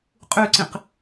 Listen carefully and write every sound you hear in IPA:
qʼ ʉ ǀ ĩ q

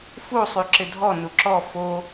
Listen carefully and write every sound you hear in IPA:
f u sˤ y ǁ ɪ dʱ ɔ n u ǁ ɔ f o

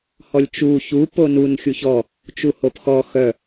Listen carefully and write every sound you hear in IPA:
h ɔ lʲ t͡ʃ u ç u p o n u n xʲ u ç ɔ | t͡ʃ u h o p x ɔ x œ

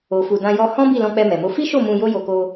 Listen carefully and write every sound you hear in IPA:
o˨ f u˨ d ã˧ j ɔ˧ h ɔ̃˦ b i˦˨ l ɔ̃˧ k͡p ɛ˧ m ɛ˨ m o˧ f i˦ ʃ o˦˨ m ũ˧ j o˦ j o˧ k o˧

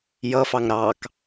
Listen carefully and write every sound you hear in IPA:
j ʌ f ɑ ŋ ɾ ɑ k

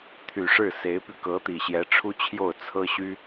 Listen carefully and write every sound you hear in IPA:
t̪ʰ y˨˩ ʂ ɻ̩˥˩ s e˧˥ ɪ̯ p y˧ k ɤ˧˥ t̪ i˨˩ ɕ j ɛ˧˥ ʈ͡ʂʰ u˥ t͡ɕʰ j o˥˩ ʊ̯ t͡sʰ ɤ˥ ɕ y˥

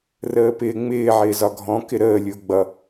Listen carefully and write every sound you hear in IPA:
r əː p ɪː ŋ͡m ɪː ʕ ɪː z ɒ ɡʱ ɔ̃ k ɪ ɾ əː lʲ ʊː ɡ͡b ʌ

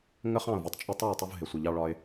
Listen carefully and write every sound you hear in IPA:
ŋ ə˧ χ ɑ̃˥˩ ʊ̯ v ɒ˨˩ tˤ t͡ʃʼ ʌ˥˩ tˤ ɑ˥˩ w tˤ u˧ v ɦ ɪ˨˩ sʷ ɪ˨˩ ʎ ɑ˧ ɭ ɒ˧ ɪ̯

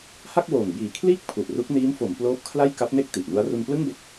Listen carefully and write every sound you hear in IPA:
h a˥˩ k̚ w oː˨˩ ŋ b iː˨˩ kʰ l iː˥˩ k̚ pʰ u˨˩ ʔ r u˦˥ k̚ n iː˦˥ m f o˩˦ m p l oː˦˥ p̚ kʰ l a˥˩ j k a˦˥ p̚ n e˥˩ k̚ t i˨˩ ʔ n u˦˥ a̯ r u˧ n p l ɯ˥˩ ŋ b e˦˥ k̚

